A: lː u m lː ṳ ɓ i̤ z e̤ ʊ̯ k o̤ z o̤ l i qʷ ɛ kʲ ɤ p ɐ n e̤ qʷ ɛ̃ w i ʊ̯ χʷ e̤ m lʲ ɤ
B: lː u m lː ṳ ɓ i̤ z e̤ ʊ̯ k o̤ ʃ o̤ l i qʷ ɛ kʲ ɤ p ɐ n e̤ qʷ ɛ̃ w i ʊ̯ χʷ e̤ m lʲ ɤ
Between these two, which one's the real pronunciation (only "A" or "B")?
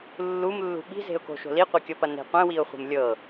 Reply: B